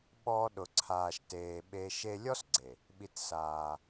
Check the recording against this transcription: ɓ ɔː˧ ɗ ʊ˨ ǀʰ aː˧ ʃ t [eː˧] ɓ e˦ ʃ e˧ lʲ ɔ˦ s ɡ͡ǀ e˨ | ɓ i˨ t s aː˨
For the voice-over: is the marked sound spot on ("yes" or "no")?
yes